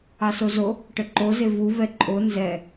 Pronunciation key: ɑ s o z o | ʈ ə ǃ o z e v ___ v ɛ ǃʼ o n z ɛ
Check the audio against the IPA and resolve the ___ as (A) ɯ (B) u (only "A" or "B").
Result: B